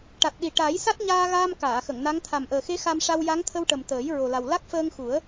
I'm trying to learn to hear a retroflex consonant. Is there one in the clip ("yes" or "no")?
yes